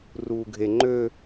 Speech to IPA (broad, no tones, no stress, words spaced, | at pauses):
ruːɡʱe ŋ͡ǃø